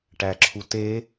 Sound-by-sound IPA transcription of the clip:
ʈ æ ǁʰ u t e

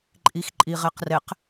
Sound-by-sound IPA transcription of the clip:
ǃʼ i x ǃʼ i ʁ ɛ q r ɛ q

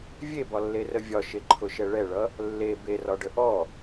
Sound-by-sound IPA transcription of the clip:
vʲ e b ɒ lː e r ə vʲ ɒ ʃ e ǃʰ ʊ ʃ ɛ ɭ ɛ ɭ ʌ | lː e b e r ɒ ɖ ə ʔ ɔ

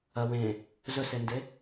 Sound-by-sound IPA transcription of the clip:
ɐ w ẽ | z ɵ s e n d e

